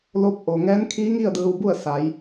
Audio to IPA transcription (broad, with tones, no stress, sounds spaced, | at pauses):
l oː˧˥ p̚ ʔ o˩ ŋ ɛː˧˥ n kʰ iː˧˥ ŋ i˥˨ ə̯ d ɯː˧ w b u˥˨ ə̯ s a˩˧ j